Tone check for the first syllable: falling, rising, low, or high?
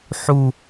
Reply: falling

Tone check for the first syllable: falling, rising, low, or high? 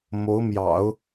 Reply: rising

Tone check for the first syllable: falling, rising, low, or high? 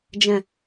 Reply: low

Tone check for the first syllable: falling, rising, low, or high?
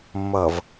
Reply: low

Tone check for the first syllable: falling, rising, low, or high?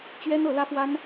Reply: high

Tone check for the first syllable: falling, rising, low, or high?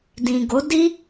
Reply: low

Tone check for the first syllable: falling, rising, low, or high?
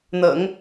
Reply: low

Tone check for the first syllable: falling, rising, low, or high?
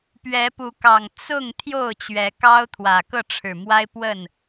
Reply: rising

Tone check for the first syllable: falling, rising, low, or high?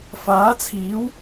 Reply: rising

